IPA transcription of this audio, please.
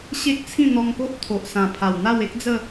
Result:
ɕ e˦ k̚ t͡sʰ ĩ˥˧ n̪ ɔ˧ ŋ k o˦ ʔ t̪ʰ o˨ ʔ s ã˨˩ pʰ a˨˩ w n̪ a˥˧ w e˦ k̚ d͡z ə˥˧

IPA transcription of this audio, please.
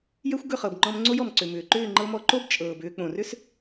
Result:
j ɛ˦ xʷ ɡ ʏ˦˨ χ ɤ˨ b ŋ͡ǃ ɔ̃˧ m ŋ͡ǀ o˦ j ɔ˨ m ǀ ʏ˨ m ʏː˨ ǃ ʏː˦˨ ŋ͡ǃ ɤ˧ m ɔ˧ ǃ o˦ b t͡ʃʼ ɤː˨ b ʏː˧ k͡p õ˨ r ʏ˦ s

